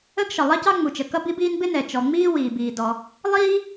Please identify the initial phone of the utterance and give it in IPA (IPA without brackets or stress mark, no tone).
ə